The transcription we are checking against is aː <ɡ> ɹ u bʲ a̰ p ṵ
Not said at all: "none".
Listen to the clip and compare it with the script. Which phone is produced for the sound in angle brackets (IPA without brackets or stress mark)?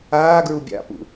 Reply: ɡ